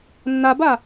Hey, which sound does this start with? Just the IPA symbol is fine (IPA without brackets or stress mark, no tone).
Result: nː